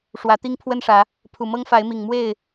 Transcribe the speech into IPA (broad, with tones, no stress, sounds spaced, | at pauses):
ʂ w ä˨˦ t̪ i˦ ŋ pʰ w ə˦ n ʂ ä˨˦ | pʰ u˨˩ m ɤ˦ ŋ f a˨˦ ɪ̯ m i˨˩ ŋ m w e˥˨ ɪ̯